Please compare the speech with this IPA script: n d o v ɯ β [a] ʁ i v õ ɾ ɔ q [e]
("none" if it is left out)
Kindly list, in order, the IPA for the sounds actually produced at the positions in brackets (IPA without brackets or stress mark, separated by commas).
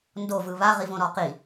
a, i